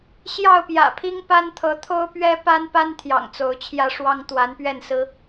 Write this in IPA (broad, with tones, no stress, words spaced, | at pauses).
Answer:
ɕjɑ˥˨ʊ̯pjä̰˨˩pʰi˦ŋpa˦n t̪ʰɤ˨˦t̪ʰo˦ʊ̯pɥɛ˦ pa˦npa˦nt̪ʰjɑ̰˨˩ŋ t͡so˨˦ʊ̯t͡ɕʰjä˦ʂwɑ˦ŋ t̪wa˨˦npɥɛ˥˨nsɹ̩˦